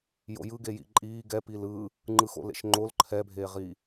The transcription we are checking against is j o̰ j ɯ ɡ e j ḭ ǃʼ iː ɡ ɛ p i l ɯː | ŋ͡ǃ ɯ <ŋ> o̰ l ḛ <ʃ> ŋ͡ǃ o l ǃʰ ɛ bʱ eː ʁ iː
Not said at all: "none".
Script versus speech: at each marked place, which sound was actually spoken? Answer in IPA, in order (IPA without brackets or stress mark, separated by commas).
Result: x, ʃ